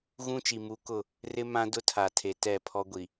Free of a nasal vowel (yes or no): no